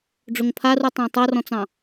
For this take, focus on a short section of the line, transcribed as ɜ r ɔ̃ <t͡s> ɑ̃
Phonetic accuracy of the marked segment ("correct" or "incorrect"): correct